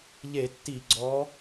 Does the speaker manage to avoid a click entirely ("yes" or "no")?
no